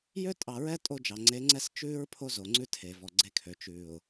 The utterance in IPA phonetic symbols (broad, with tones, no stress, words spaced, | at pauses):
jø˦tʼɑ˨ɹɛ˦ tʼo˦d͡ʒɑ˨ ŋ͡ǀe˨˦ŋ͡ǀɛ˦s t͡ʃʉː˦ɹ pʰo˦zo˨ŋ͡ǀʉ˦ tʰe˨ vɔ˨ɡ͡ǀe˦kʰø˨ t͡ʃʉː˨ʊ̯